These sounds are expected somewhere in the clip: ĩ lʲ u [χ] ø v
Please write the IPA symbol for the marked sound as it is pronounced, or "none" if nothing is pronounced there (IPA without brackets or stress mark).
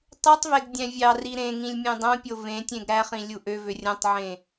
ʔ